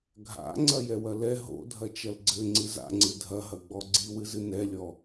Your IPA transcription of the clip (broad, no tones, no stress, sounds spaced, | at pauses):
ɡʱ a̰ ŋ͡ǀ ɐ j ɛ w ɐ l ɛ ɦ o̰ dʱ ɐ t͡ʃ ɐ l ɡ͡ǀ ɘ ŋ͡ǀ ɨ z a̰ ŋ͡ǀ ɨ dʱ ɐ ɦ ɐ ɡ͡b ɔ ɡ͡ǀ i w ɨ z ɨ n ɛ lʲ ɔ